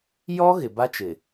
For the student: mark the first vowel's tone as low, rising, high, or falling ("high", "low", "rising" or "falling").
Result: high